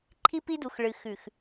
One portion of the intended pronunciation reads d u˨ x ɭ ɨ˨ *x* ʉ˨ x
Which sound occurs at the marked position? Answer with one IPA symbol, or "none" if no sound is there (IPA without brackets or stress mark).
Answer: x